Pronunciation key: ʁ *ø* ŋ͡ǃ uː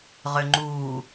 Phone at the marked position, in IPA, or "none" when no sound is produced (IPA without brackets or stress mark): ø